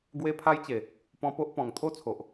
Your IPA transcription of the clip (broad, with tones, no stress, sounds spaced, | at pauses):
ɡ w e˦ pʰ a˦ j t͡ɕ e˨˩ | p ɔ̃˧ p o˦ ʔ p ɔ̃˨˩ ŋ t̪ʰ o˥˧ t͡sʰ o˨ ʔ